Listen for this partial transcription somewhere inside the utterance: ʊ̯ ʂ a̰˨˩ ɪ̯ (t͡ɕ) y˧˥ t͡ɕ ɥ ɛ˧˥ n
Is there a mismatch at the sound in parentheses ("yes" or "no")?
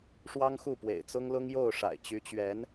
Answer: no